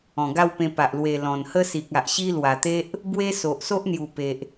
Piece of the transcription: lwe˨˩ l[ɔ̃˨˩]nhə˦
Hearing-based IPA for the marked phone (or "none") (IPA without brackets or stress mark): ɔ̃˨˩